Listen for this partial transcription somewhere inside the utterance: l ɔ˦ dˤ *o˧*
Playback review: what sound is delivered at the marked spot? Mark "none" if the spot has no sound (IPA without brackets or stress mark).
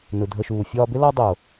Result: o˨